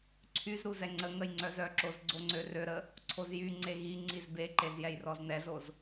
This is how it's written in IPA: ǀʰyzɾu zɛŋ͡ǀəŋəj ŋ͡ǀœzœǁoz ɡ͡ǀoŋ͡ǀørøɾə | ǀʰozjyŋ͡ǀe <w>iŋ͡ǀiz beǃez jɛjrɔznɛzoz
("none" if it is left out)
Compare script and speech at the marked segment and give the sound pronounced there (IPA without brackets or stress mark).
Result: ɣ